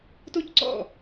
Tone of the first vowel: high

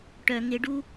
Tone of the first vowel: low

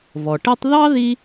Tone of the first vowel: low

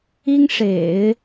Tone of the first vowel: high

